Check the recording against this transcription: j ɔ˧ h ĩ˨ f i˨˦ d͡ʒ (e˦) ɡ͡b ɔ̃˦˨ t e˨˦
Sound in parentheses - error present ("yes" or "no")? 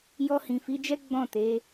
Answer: yes